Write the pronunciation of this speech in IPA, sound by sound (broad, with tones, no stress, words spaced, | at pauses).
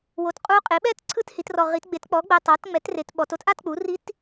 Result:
wo˨˩tqʼu˧˥ qʼe˩˥ɓɛ˥˧t ǀʰɯ˥˧thi˩˧trɔ˨˩ ʁi˩˧tɡ͡be˩˥tk͡pɔ˩˥ɡ͡bɛ˨˩ tˤa˩˥tŋ͡mɛ˩˥tre˩˧t ɓɔ˩˧to˧˥tʔa˥˧tk͡pu˩˥ ri˧˥t